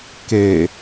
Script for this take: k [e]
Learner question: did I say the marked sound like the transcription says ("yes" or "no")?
yes